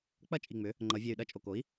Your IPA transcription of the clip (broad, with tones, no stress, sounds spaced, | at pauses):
k͡p ɐ˥˩ t͡ʃʼ i˨˩ ŋ͡m ʏ˩˥ | ŋ͡ǃ ʌ˩˧ vʲ e˨˩ y̯ ɗ ɐ˥˩ t͡ʃʼ o˨˩ k o˩˥ i̯